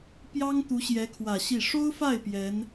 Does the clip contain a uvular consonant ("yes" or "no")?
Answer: no